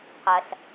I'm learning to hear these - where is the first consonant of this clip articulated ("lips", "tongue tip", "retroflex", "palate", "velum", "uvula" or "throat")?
uvula